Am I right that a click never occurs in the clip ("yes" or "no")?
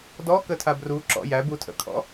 no